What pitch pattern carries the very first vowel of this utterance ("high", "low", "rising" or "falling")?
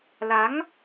rising